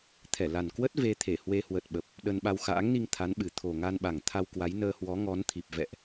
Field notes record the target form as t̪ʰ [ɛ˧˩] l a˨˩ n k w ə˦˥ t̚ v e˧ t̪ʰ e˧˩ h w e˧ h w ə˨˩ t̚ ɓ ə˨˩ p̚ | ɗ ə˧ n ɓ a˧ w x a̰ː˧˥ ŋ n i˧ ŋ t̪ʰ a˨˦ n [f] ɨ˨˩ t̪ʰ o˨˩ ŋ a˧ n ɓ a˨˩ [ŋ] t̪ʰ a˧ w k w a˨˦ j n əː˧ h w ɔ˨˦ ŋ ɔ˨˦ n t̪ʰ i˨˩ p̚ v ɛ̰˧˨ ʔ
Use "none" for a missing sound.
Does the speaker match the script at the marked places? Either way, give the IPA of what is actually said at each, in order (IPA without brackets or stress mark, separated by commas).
ɛ˧˩, ɓ, ŋ